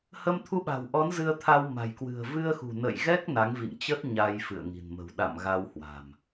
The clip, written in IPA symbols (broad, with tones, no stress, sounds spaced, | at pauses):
h ə˧ m t̪ʰ u˧ ɓ a̤˨˩ w ʔ ɔ˨˦ n z ɨ˧ ə̯ t̪ʰ a˧ w m a̤˨˩ j k w ɨ̤˨˩ ə̯ v ɨ˧ ə̯ x ṳ˨˩ n ə̰˧˨ j ɣ ɛ˦˥ k̚ n a˨˦ ŋ v ḭ˧˨ ŋ t͡ɕ ə˦˥ t̚ ɲ a˧ j f ɨ̰˧˨ ə̯ ŋ i̤˨˩ n m ə̤˨˩ w ɗ a̰˧˨ m ɣ a˧ w h w a̤˨˩ m